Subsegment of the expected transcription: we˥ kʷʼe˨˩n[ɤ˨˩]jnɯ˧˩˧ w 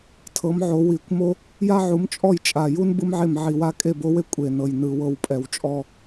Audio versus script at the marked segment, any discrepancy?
no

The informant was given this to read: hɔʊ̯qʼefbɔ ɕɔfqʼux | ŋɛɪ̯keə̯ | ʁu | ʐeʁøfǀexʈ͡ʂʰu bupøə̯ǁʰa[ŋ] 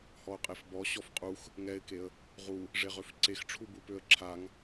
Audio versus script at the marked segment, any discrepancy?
no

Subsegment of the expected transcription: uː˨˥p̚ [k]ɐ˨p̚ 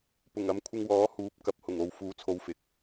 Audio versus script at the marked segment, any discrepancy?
no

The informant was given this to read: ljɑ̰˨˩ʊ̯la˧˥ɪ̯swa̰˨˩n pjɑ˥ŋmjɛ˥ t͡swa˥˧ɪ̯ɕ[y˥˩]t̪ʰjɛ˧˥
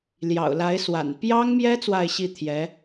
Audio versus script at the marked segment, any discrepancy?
yes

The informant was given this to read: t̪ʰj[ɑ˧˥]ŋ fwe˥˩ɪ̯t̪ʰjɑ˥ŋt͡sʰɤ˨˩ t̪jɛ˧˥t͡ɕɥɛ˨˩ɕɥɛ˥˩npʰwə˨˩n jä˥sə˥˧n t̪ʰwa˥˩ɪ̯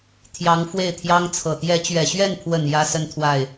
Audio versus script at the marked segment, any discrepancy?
no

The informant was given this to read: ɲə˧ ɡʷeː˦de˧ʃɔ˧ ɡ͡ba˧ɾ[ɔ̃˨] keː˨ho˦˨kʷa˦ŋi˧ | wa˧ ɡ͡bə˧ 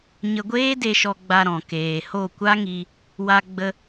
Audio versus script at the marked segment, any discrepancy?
no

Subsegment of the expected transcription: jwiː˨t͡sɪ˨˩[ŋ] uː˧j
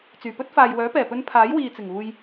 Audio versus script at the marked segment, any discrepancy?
no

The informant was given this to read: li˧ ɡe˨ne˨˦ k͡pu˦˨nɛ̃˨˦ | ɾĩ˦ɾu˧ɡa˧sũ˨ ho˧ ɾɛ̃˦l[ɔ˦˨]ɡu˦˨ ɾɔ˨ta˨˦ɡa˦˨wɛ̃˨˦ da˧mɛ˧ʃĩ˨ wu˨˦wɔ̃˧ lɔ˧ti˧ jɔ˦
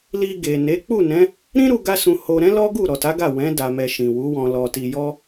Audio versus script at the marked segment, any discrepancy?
yes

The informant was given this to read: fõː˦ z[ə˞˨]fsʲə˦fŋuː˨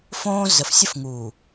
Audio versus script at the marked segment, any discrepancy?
yes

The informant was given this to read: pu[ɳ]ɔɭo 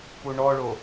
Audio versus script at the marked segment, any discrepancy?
no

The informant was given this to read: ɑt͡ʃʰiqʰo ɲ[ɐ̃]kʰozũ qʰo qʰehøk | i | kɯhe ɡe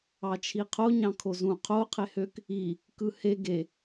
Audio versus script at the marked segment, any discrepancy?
yes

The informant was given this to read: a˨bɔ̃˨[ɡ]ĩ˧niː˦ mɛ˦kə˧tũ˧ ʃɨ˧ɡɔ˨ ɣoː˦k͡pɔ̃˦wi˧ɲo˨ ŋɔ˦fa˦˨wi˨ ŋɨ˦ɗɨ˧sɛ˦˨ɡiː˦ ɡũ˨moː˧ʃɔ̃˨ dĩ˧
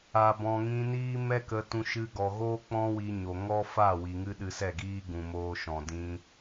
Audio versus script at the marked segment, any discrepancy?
yes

